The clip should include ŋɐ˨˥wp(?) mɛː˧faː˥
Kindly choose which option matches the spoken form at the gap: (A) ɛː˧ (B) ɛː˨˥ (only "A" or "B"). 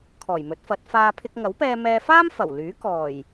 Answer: A